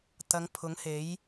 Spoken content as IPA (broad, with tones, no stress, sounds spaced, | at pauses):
t̪ ɐ˨˧ ŋ pʰ ʊ˨˥ ŋ h e˨˥ j